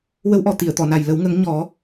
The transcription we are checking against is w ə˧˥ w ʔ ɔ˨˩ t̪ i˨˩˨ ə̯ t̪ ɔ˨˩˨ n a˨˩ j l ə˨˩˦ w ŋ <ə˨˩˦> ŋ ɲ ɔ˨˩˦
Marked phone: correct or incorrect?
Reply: correct